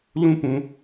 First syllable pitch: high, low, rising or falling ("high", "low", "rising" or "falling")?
high